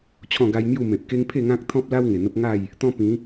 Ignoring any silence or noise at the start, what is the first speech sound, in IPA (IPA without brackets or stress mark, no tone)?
t͡ɕʰ